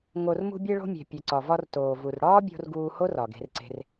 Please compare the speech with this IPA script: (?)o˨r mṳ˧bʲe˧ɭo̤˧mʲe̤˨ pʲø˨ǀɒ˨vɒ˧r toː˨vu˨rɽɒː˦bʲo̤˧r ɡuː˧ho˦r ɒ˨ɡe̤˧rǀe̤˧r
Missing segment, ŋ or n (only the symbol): ŋ